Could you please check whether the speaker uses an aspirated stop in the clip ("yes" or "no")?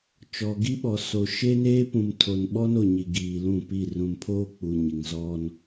yes